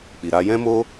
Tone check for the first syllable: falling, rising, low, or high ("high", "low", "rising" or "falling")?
low